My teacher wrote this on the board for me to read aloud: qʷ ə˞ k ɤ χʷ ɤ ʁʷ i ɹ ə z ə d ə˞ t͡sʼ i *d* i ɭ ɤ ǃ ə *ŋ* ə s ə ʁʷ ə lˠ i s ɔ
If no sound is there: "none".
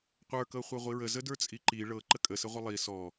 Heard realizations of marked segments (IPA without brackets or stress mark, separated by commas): ǃ, kʼ